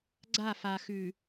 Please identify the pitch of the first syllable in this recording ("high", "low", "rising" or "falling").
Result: falling